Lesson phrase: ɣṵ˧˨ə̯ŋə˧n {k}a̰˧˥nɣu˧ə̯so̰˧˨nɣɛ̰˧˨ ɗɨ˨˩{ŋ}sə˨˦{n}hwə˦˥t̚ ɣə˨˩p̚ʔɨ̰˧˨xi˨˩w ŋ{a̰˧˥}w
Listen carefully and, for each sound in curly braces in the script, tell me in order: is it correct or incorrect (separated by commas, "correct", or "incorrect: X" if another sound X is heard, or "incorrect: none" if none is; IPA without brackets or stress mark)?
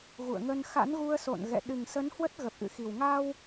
incorrect: x, correct, correct, incorrect: a˧